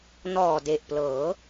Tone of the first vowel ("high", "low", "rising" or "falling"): low